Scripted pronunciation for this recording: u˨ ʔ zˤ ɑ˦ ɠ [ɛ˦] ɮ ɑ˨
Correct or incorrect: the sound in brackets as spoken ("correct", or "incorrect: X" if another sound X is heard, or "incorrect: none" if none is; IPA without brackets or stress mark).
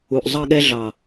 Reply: correct